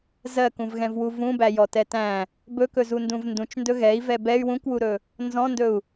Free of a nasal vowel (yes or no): no